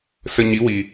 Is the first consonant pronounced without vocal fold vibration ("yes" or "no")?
yes